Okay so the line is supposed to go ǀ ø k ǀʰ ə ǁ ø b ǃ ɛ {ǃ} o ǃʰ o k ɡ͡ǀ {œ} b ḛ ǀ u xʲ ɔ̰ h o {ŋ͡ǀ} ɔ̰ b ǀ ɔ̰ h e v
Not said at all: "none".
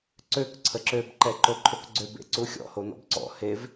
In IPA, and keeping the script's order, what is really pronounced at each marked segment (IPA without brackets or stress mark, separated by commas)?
ǃ, ø, n̪